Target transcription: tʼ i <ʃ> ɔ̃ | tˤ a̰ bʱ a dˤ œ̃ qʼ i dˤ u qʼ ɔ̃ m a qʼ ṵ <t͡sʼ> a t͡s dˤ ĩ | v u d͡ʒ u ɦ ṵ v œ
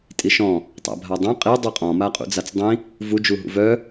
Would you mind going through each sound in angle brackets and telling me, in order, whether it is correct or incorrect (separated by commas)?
correct, incorrect